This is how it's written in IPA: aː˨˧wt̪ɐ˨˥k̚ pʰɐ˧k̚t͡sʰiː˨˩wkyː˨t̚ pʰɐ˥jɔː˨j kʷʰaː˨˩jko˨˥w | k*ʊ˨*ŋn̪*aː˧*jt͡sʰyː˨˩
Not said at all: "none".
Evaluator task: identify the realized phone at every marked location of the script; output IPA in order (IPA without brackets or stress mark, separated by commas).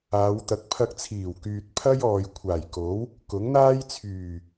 ʊ˨˥, aː˥